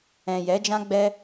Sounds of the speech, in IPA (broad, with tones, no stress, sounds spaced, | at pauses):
ɛ̃˨ j ɛ˨˦ d͡ʒ ã˦ ɡ͡b ɛ˦